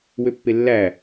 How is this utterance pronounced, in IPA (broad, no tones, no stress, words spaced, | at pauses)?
wøpːelːæ